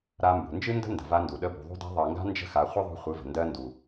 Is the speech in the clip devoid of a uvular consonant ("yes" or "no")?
no